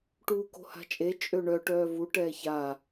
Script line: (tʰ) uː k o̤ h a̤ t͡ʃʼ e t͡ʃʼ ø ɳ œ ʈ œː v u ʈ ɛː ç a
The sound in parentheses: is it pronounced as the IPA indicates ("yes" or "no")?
no